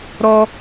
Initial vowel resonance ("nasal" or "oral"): oral